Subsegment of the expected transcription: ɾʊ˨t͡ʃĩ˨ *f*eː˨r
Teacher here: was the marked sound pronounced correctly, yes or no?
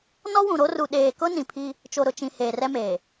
no